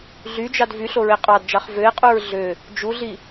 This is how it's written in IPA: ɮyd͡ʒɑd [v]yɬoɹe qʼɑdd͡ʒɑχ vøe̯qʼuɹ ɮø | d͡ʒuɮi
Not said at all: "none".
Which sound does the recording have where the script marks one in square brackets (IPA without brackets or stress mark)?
v